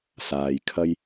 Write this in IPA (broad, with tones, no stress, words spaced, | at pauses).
saː˧j kʰɐ˥j